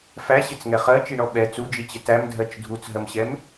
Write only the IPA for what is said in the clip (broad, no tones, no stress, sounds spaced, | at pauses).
f æ ɕ ɪ t͡s ŋ ɛ χ ɜ t͡ʃ i ɳ ɔ ɓ ɛ t͡s u d͡ʒ i t͡ɕ ɪ t æ m dʱ ɜ t͡ʃ dʱ u t͡s ɦ ɜ m ɕ ɛ m